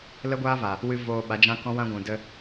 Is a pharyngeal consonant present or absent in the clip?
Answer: absent